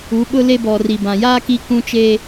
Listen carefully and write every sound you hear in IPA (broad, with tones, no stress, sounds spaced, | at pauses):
u˨˦ ɓ ʊ˦ l e˦ b ɔ˨ r i˨ b ã˨ j aː˦ k i˦ k ũ˦ t͡ʃ eː˦